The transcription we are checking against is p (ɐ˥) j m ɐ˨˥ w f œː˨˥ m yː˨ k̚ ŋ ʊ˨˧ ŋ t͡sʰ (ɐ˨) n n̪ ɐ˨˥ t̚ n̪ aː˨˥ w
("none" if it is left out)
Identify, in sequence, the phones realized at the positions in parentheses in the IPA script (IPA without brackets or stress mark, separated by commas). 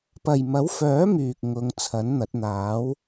ɐ˨, ɐ˨˥